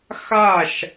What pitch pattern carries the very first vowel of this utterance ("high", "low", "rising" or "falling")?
falling